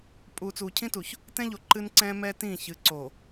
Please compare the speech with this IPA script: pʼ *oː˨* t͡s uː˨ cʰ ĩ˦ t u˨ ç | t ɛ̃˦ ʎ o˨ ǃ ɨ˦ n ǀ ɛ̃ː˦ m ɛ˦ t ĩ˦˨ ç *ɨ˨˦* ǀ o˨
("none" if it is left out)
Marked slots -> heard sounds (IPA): uː˨, ɨ˨˦

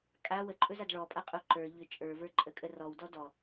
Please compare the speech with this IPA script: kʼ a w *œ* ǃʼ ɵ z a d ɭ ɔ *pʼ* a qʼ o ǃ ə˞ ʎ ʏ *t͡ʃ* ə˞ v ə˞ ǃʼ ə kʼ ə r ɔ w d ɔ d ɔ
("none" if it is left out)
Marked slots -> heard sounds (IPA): ə, pʼ, t͡ʃʼ

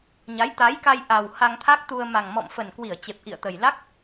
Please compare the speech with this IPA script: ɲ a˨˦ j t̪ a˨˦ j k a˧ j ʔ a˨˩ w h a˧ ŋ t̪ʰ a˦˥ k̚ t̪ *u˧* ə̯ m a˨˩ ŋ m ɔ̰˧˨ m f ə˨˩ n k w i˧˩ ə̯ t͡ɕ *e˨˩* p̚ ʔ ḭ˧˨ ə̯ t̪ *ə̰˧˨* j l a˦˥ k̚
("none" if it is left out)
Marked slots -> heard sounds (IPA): u˧, e˨˩, ə˨˩

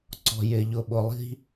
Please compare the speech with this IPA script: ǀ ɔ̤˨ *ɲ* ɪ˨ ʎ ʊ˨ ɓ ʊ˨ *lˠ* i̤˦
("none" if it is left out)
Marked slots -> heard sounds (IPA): j, lˠ

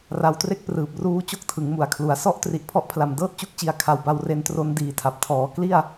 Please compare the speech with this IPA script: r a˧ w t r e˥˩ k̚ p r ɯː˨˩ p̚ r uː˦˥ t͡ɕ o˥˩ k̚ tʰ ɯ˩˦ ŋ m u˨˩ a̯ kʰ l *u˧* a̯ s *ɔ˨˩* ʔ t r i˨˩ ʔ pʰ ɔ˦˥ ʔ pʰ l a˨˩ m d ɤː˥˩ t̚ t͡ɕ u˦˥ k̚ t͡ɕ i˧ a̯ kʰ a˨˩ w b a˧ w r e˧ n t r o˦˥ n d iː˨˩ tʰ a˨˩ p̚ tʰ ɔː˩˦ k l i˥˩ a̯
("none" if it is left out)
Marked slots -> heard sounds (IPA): u˩˦, ɔ˦˥

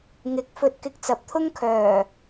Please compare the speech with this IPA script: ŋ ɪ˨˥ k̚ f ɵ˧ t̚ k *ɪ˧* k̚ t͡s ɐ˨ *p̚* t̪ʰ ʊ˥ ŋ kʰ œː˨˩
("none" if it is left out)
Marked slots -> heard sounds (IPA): ɪ˧, p̚

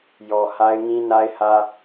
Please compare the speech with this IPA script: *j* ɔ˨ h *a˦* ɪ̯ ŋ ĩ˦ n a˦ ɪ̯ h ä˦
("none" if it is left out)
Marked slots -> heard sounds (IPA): j, a˦

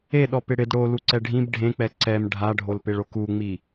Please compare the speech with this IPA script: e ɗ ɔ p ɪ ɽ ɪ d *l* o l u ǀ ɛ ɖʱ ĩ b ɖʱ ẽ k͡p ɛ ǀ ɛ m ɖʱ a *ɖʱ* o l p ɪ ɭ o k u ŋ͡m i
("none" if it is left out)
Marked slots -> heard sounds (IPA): ɽ, ɖʱ

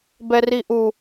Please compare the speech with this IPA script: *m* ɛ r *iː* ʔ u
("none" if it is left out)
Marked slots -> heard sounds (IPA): b, i

